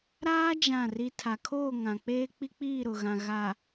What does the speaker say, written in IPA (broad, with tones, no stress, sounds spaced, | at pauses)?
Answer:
ɾ aː˦ d͡ʒ ã˦˨ r i˦ tʰ a˨ kʰ oː˦˨ ŋ ã˨ k͡p eː˦ k͡p i˦ k͡p iː˦˨ ɾ ʊ˨ ɣ ã˨ ɣ a˨